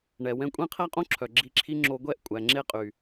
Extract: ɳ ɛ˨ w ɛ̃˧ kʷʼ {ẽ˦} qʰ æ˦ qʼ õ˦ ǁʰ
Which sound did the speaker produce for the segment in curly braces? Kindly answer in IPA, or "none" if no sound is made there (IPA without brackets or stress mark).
ẽ˦